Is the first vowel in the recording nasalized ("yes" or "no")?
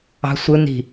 no